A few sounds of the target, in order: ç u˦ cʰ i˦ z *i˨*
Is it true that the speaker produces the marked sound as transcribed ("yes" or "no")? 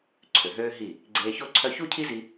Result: no